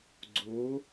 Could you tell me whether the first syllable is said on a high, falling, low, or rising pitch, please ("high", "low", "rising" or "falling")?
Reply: rising